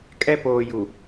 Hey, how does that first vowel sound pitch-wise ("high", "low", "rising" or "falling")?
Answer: high